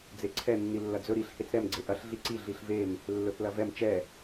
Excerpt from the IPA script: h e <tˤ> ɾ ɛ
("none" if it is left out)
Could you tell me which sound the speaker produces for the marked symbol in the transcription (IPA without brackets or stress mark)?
t͡s